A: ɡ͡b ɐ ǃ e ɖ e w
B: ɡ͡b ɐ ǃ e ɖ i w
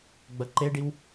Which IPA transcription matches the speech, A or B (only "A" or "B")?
B